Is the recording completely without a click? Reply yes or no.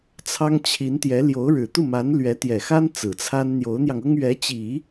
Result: yes